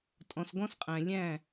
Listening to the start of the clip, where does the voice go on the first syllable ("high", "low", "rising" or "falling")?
low